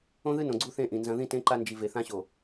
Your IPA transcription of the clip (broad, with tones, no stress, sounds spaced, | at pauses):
õ˦ ð ɨ˦ n õ˨ ɡ͡ǀ u˦˨ θ ẽ˦ ʔ ĩ˨ n z ɐ̃˦ ð ĩ˦ t ẽ˦ ǃ a˦ n d͡ʒ i˨ v e˨ θ ã˦ ɕ o˨